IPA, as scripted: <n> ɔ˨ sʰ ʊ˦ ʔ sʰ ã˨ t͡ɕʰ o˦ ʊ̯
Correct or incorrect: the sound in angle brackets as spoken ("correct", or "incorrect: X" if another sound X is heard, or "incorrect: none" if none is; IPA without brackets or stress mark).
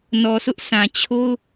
correct